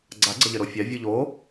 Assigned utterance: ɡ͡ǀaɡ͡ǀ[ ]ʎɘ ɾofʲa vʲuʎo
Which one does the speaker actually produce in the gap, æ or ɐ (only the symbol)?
ɐ